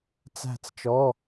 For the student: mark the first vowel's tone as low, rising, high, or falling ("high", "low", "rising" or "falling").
falling